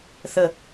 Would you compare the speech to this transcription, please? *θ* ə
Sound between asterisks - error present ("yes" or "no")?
no